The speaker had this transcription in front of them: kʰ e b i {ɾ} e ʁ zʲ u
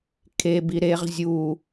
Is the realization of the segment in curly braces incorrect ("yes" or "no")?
no